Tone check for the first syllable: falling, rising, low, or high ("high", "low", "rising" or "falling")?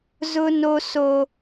high